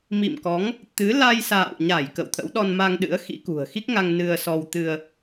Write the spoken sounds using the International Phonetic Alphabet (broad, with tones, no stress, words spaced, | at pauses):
mḭ˧˨mkɔ˨˦ŋ | t̪ɨ˨˦ la˧jsa̰ː˧˨wɲa˧˩j kə̰˧˨wt̪ʰə̰˧˥w ɗɔ˧nma˧ŋɗɨ̰˧˥ə̯ xḭ˧˥kṳ˨˩ə̯ xi˦˥k̚ŋa˧ŋ nɨ˧ə̯sɔ˧wt̪ɨ˧ə̯